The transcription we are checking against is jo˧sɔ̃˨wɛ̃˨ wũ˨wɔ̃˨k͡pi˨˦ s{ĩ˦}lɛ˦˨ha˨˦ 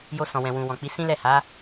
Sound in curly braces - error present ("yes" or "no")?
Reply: no